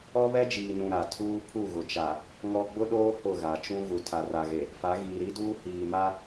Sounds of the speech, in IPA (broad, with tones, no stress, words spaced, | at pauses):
ɔ˦βɛ˦d͡ʒiː˨nũ˨ ɾa˨ tʰuː˦pʰu˦˨ɣʊ˨ t͡ʃa˨ | ŋɔ˦ ɡ͡bʊ˦ɗoː˦ hʊ˦˨ɣa˨t͡ʃũ˦ ɣu˨tʰa˨ra˨ɣe˨ | fa˨˦ɣiː˨ ɾi˦duː˦ hiː˨ma˦